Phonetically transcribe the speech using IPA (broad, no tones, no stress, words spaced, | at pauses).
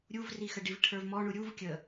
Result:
ɾʲuvrixəɖiv ʈʰə˞vmɔɳu ɾʲuv kʲə